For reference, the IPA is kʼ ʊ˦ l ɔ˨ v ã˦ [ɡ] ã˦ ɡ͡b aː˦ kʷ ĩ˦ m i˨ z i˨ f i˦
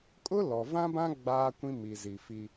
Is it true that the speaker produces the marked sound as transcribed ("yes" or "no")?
no